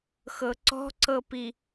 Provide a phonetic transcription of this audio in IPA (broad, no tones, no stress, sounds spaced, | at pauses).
x ɤ ǀ ɔ̤ ǀ ɤ p i